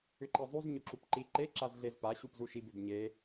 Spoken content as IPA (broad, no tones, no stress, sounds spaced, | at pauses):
ʏ ǃ e zˤ u z ɲ ʊ ǁ u p ǃ i ǃ e ǁ a z ɮ e z p a ɕ u p z u ʃ i b ʏ b ɲ e